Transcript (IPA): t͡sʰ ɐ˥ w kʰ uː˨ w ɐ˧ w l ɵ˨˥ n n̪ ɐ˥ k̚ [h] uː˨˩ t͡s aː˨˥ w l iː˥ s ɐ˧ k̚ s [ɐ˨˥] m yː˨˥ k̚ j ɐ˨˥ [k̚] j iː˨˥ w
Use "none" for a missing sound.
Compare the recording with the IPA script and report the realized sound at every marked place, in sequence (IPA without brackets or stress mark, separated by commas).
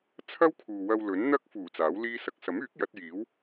f, ɐ˨˥, t̚